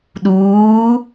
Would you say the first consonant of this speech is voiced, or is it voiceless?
voiced